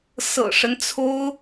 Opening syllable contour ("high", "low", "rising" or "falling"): low